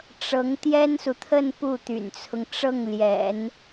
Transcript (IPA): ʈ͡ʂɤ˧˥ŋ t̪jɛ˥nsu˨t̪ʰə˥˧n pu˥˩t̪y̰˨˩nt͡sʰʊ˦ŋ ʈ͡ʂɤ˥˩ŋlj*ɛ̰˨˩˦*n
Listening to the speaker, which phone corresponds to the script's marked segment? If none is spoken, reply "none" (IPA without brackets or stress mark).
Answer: ɛ̰˨˩˦